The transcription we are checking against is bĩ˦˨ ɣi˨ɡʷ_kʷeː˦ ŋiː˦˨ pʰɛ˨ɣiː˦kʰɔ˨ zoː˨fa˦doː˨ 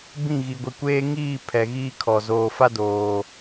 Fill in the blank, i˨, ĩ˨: i˨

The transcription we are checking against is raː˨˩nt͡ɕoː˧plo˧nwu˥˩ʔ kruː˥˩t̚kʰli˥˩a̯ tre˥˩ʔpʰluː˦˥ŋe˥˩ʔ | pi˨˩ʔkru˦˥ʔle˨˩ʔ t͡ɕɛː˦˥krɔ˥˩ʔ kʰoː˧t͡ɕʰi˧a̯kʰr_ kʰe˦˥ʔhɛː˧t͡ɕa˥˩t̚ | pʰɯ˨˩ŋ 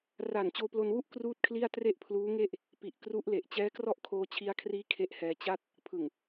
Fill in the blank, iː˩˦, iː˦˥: iː˦˥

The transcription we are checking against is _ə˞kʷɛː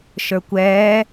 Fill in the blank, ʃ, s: ʃ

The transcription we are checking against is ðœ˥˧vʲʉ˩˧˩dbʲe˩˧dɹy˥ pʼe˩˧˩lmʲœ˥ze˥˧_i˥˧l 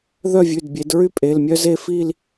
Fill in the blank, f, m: f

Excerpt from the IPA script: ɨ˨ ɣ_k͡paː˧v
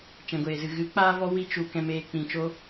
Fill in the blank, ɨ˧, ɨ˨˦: ɨ˨˦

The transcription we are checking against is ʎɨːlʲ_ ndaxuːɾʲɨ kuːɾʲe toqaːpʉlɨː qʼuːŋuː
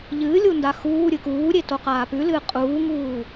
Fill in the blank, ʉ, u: u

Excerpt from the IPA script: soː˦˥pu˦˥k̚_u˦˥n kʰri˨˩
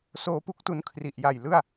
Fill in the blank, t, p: t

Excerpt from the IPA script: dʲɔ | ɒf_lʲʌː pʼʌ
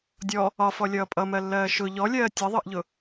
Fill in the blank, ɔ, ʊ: ɔ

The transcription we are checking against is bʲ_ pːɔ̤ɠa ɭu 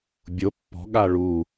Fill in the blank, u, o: o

